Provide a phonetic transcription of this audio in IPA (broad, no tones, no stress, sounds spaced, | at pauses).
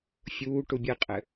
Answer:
fʲ uː ʈ u bʲ ɨ qʼ ɘ